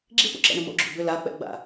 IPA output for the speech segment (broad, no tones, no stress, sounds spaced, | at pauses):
ɡ͡ǁ i p ṵ ǁ ɛ̰ ɳ ʏ m o̰ ɡ͡ǁ ṵ b ʏ l a k͡p ɛ̰ ɡ͡b a̰